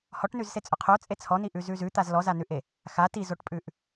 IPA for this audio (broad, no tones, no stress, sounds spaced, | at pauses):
h ɔ ʈ n ʉ z s e t͡sʼ ʊ qʰ o t͡sʼ e t͡sʰ ɔ n i ʔ ʉ z ʉ z ʉ t̪ a z l ɔ z a n ʉ ʔ e | x a t i z o ʈ pʼ ʉ ʔ